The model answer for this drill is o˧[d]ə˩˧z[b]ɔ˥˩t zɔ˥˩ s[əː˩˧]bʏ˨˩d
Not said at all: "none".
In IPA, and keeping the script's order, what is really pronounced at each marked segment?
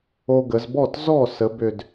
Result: ɡ, b, ə˩˧

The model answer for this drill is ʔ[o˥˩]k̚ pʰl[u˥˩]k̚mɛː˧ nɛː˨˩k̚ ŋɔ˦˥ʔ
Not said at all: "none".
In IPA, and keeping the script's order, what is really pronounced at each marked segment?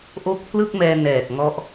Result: o˥˩, ɯ˥˩

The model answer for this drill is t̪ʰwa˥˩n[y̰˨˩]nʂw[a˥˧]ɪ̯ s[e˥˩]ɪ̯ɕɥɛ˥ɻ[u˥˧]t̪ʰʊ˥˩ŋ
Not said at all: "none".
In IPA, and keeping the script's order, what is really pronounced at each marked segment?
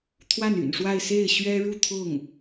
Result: y̰˨˩, a˥˧, e˥˩, u˥˧

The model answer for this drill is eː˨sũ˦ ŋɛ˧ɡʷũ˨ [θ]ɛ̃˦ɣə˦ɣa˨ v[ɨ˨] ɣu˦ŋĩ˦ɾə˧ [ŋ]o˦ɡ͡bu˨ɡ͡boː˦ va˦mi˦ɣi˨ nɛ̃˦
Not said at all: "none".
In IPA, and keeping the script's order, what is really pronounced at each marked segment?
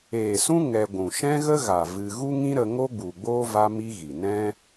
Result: ʃ, ɨ˧, ŋ

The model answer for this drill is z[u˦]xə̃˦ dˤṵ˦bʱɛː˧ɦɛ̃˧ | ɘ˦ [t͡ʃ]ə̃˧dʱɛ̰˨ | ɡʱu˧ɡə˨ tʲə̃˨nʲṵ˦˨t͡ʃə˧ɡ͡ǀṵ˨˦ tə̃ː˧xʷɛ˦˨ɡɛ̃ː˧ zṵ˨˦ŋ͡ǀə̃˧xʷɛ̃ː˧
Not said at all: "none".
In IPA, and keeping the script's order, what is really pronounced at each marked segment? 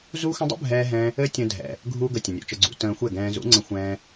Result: u˦, tʲ

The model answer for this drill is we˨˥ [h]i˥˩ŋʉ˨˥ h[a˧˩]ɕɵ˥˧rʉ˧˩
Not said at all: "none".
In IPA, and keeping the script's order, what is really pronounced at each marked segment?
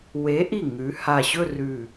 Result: ʔ, a˧˩

